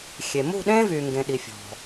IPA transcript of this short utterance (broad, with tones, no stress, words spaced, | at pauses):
xʲe˨ mṳ˦˨ ɗẽ˦vy˨ ŋɡẽ˧ɗi˨fʲɔ̤˨